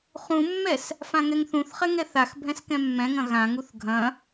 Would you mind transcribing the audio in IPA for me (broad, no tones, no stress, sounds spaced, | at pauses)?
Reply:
χ ũ mː ɛ s | f ã ŋ ɛ ŋ θ ũ θ χ ɛ ŋ ɛ θ a x bʱ ɛ̃ s k ɛ̃ mː ɛ̃ ŋ ɐ̃ ɣ ã ŋ u θ ɡʱ ɐ̃